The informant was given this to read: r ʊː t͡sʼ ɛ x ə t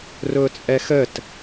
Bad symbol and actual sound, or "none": none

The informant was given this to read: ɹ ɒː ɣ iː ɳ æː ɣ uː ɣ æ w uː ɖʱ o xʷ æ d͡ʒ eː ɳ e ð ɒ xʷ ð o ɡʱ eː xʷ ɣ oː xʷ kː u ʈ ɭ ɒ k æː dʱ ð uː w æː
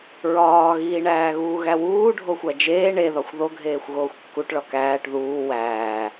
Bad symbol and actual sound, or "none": dʱ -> ʈ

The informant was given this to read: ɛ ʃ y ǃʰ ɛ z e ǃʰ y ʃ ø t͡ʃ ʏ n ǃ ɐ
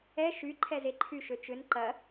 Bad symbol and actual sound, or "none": none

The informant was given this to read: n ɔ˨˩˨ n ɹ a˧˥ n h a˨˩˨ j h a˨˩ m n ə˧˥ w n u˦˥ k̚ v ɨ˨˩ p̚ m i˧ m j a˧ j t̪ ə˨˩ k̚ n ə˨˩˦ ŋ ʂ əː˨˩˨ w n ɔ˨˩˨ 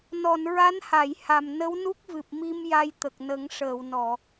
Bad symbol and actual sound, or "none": none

